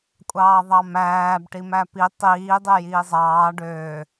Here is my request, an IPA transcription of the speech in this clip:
kʷʼ ɑː ðˤ ɑ m æː b ʈ i m æ p i tˤ iː dˤ e j iː zˤ ɑː ɖ øː

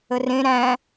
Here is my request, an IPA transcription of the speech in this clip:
ə r ẽ ɾ æ̃

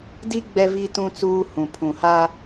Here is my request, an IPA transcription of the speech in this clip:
d i˦ ɡ͡b ɛ˦ v i˦ t ũ˦ t͡s uː˦ h ũ˨ pʰ ũ˨ h a˦

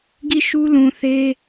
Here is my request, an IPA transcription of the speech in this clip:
ɡ i˦˨ ʃ u˦ l ũ˨ θ e˦

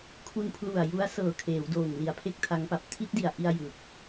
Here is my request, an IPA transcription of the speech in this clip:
kʰ u˧ n pʰ l u˨˩ a̯ j u˦˥ a̯ s ɤː˨˩ kʰ eː˩˦ w d oː˨˩ ŋ l i˨˩ a̯ pʰ e˥˩ k̚ tʰ a˦˥ ŋ p a˨˩ p̚ tʰ i˦˥ t̚ d i˨˩ a̯ ʔ i˧ a̯ j ɯ˨˩ k̚

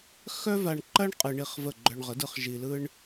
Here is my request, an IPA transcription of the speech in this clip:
x œ˥ v a˧ ɳ ǃ ɐ˥ ɳ qʼ ɯ˧ ɳ i˥˩ χ v ə˥˩ ɡ͡ǃ œ˧ ɳ ʁ ə˩˥ d ɯ˧ χ ʒ i˧ l ɯ˥ ɳ

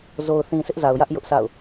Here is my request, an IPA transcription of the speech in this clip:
z o˨ ʊ̯ θ ĩ˨ s ɪ˦ ʔ z a˨ ʊ̯ j ä˦ ʔ j ʊ˦ ʔ sʰ a̰˦˨ ʊ̯

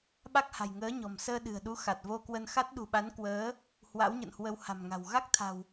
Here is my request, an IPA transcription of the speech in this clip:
ɓ a˦˥ k̚ h a̤˨˩ j ŋ əː˨˦ ɲ ɔ̤˨˩ m s əː˧ ɗ ɨ̤˨˩ ə̯ ɗ u˨˦ x a˨˩ t̚ v o˧ k w ə˧ n x a˦˥ t̚ ɗ ṳ˨˩ ɓ a˨˦ n k w əː˨˦ | h w a̰˧˥ w ɲ ə̰˧˨ n h w ə˧ w h a̤˨˩ m ŋ a̤˨˩ w ɣ a˦˥ k̚ t̪ʰ a̤˨˩ w

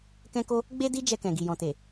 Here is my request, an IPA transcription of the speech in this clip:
k ɛ̃˦ k o˦ | ɡ͡b e˦ d i˦ d͡ʒ ɛ˧ k ɛ̃˨ ɡ i˨ j ɔ̃˨ t e˨

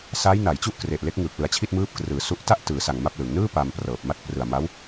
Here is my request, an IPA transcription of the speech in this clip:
s aː˦˥ j n a˩˦ j t͡ɕ u˥˩ ʔ k r e˨˩ ʔ l e˦˥ k̚ ŋ ɯː˨˩ k̚ l ɯ˨˩ a̯ t͡ɕʰ i˥˩ t̚ m ɯː˦˥ p̚ k r ɯː˩˦ s u˦˥ ʔ t a˥˩ ʔ t ɯː˩˦ s a˨˩ ŋ m a˥˩ p̚ l ɯ˩˦ ŋ n ɯː˥˩ p aː˧ m p r ɤː˨˩ p̚ m a˥˩ t̚ p r ɯ˨˩ a̯ m a˦˥ w

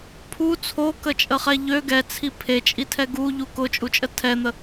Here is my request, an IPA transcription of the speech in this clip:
pʰ u t͡sʰ o k ə t͡ʃʼ ə χ ɛ ʎ ø ɡ ɛ t͡sʰ i pʰ e t͡ʃʼ i tʰ ɛ ɡ u ʎ u k ʊ t͡ʃʼ u t͡ʃʼ ə tʰ ɛ n̪ ə

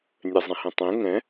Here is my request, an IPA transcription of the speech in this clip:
nʲ ɛ zˤ ɛ̃ h ɛ̃ tˤ ẽ ŋ ɛ̃

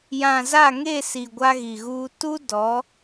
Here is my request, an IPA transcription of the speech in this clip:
j ã˨ z a˦˨ ŋ e˦˨ s i˨ ɡʷ a˦ ɣ i˨ ɣ uː˦ t u˦ d ɔ˨˦

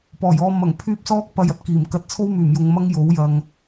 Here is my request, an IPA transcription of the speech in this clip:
p ɔː˨˩ j ɔː˧ m ɐ˨˩ ŋ pʰ yː˧ p̚ s ɔː˥ k̚ p ɐ˧ j ɐ˨ t̚ k iː˨˩ m k ɐ˧ t̚ t͡sʰ o˥ w m yː˨˩ m j ʊ˨ ŋ m ɐ˥ ŋ j o˨˥ w j ɐ˨ ŋ

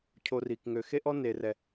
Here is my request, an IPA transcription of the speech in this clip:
cʰ o˧ r i˨ k ŋ ø˨ x e˦ ʔ ɔ˦ n e˨ r ɛ˨

